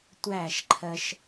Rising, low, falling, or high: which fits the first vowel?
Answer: falling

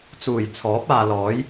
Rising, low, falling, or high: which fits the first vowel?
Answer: low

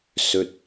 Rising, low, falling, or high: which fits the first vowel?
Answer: low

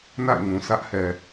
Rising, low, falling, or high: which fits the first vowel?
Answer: falling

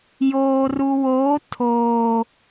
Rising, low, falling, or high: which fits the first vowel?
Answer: low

